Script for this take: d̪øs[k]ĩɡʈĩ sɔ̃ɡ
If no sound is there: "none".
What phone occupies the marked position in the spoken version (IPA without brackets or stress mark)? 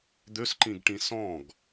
ǃ